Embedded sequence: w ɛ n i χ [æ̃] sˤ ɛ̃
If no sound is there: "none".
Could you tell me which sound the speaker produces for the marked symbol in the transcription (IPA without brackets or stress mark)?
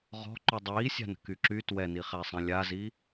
æ